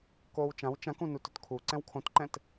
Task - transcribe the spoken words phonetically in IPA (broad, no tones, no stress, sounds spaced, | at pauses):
k oː w t͡ʃ ã w t͡ʃ ã k ũ n u t ʊ t kʰ u ǀ ɛ̃ w kʰ õ t ǃ ɛ̃ t